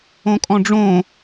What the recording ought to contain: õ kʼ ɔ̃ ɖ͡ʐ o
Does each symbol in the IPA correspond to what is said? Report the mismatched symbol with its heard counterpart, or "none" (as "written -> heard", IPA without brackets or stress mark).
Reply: o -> õ